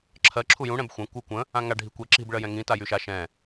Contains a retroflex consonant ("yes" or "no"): yes